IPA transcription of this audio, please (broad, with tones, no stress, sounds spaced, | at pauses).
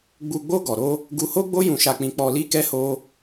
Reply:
ɡ͡b u˧ ɡ͡b o˦ ɡ ɔ˧ ɾ o˦ | ɡ u˧ h o˦ ɡ͡b o˦ j ũ˧ ʃ a˧ k͡p ĩ˧ k͡p ɔ˧ l i˦ k ɛ˦ h o˦